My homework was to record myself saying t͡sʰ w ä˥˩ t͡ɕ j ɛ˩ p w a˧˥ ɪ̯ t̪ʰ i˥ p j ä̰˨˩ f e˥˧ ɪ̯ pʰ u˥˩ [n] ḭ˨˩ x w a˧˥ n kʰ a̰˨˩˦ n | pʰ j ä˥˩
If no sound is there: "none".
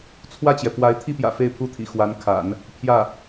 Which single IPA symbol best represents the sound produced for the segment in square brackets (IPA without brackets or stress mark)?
t̪ʰ